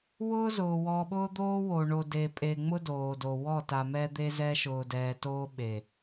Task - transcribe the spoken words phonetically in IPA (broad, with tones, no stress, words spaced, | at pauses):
wʊː˦zʊː˨ wɔ˨ɓʊː˦d̪oː˦wo˨ ɳo˨de˨pʼe˨ŋ͡mʊ˦ doː˨do˨ wɔ˦˨ta˨mɛ˦d̪e˦ zɛ˦ʃʊː˨dɛː˨toː˦ ɓe˨